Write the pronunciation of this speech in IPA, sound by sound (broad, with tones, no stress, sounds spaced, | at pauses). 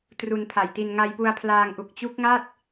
t r u˧ n pʰ a˨˩ j t i˧ n ŋ a˧ j p u˧ a̯ pʰ l aː˧ ŋ ʔ u˨˩ k̚ t͡ɕ u˦˥ k̚ ŋ a˥˩ t̚